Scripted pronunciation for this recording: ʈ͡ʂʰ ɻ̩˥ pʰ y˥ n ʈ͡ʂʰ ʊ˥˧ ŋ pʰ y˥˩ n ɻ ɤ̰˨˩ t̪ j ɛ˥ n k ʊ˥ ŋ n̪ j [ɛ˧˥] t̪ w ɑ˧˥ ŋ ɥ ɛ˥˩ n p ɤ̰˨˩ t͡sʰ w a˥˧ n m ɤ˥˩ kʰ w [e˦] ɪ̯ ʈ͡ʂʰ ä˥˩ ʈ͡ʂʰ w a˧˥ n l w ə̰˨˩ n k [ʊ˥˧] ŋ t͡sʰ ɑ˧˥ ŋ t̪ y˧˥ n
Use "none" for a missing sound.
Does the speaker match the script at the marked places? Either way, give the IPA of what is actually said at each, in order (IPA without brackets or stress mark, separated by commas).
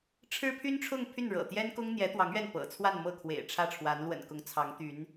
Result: ɛ˧˥, ḛ˨˩, ʊ˧˥